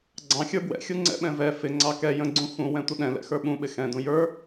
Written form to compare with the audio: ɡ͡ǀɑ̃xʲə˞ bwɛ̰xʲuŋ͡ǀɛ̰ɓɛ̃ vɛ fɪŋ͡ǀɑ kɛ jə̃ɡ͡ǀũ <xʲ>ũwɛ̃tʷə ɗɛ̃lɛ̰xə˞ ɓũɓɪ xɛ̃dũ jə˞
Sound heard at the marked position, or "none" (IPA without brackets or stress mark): x